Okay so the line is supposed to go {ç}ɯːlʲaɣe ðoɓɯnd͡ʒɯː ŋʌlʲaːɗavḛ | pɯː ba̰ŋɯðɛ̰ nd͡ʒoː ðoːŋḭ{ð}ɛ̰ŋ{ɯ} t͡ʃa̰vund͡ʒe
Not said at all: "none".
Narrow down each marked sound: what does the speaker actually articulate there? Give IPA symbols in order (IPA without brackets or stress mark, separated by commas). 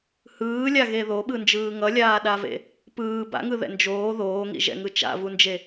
h, ʒ, ɯ